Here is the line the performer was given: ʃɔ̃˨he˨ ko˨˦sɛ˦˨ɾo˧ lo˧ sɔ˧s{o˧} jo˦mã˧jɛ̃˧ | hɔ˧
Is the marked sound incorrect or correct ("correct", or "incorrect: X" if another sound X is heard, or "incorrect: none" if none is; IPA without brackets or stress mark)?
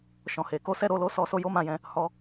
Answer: correct